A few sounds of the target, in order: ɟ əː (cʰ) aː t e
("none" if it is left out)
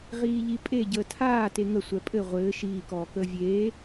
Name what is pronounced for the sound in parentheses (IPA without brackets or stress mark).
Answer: tʰ